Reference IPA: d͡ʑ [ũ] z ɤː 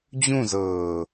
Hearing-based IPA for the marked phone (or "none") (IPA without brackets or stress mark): ũ